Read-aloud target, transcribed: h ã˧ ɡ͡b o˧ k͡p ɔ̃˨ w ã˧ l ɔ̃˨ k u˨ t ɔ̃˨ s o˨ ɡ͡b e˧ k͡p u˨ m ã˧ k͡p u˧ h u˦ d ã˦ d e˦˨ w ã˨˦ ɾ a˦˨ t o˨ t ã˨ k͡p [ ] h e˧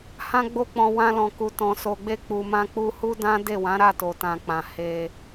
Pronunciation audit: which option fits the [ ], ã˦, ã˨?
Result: ã˨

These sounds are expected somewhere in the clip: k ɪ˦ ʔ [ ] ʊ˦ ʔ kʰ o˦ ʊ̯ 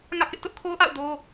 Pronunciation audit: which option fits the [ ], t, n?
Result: t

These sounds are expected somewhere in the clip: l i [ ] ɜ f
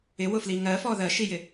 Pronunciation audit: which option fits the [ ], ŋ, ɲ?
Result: ŋ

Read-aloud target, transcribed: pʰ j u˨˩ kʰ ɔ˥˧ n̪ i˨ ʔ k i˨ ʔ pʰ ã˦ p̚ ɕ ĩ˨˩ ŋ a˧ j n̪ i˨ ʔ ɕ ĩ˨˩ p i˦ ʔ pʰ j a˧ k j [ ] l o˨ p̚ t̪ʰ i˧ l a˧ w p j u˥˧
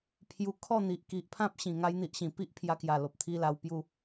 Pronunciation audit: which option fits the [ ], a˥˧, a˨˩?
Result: a˨˩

